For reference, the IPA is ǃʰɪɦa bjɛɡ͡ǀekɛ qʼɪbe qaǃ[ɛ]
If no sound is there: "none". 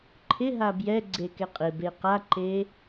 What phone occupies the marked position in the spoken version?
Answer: e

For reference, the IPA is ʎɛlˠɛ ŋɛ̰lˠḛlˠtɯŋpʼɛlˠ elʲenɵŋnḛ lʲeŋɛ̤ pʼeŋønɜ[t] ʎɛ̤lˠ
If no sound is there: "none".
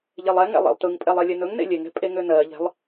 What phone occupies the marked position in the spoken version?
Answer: none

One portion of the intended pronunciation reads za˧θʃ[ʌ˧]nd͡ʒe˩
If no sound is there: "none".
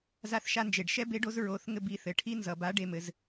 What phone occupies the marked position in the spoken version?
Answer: a˧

